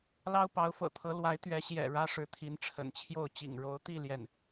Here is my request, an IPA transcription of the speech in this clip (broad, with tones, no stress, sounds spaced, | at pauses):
l ɑ˥ ʊ̯ p ɑ˧˥ ʊ̯ f ɤ̰˨˩ t̪ʰ ɤ˧˥ l w a˧˥ ɪ̯ t̪ ɥ ɛ˧˥ ɕ j ɛ̰˨˩ ɻ ä˥ ʂ ɻ̩˧˥ t̪ʰ i˧˥ n ʈ͡ʂʰ ə̰˨˩ n t͡ɕʰ j o˥˩ ʊ̯ t͡ɕ ḭ˨˩ ŋ ɻ o˧˥ ʊ̯ t̪ i˥˧ l j ɛ˥˩ n